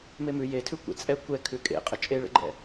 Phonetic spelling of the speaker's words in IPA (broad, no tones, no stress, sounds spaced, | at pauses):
m e m ʉ j e tʰ ʉ kʷ ḛ t͡sʼ ɛ kʷ ɛ kʰ ʉ kʼ ḛ qʼ ə t͡ʃʼ e ɭ ə̰ ɡ͡ǃ ɛ̰